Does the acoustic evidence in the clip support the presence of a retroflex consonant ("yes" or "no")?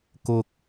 no